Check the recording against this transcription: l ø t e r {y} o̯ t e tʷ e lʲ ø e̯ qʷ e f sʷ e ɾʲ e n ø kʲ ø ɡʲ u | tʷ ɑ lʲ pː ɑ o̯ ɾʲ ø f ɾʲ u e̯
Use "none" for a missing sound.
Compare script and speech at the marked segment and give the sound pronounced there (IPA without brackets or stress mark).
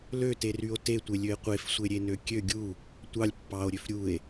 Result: y